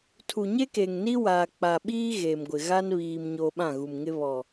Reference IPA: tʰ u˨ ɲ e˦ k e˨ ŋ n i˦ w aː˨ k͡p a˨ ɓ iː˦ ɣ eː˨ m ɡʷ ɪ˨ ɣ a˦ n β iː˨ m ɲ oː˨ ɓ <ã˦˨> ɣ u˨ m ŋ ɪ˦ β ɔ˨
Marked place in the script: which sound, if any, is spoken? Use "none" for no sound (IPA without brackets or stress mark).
ã˦˨